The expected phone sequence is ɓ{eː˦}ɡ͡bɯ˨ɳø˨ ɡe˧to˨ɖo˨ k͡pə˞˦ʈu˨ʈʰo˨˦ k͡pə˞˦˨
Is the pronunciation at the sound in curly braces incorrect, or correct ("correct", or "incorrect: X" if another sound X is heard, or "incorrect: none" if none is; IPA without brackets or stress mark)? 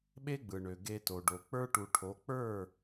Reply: incorrect: e˦